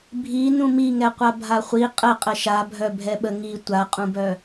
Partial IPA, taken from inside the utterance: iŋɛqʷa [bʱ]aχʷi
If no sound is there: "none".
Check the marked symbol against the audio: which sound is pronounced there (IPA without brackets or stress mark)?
bʱ